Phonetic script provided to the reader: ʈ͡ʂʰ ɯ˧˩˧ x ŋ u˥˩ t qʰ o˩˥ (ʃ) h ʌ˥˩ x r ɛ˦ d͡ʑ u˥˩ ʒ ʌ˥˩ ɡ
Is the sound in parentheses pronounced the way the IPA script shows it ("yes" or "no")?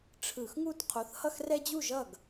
no